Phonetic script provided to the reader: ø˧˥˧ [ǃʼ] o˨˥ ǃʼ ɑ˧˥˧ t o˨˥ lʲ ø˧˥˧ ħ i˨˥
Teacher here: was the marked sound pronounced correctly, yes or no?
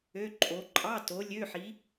yes